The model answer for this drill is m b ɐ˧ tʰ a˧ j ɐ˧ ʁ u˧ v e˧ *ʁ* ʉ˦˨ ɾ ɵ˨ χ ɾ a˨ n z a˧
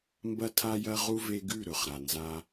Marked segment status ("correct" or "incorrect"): incorrect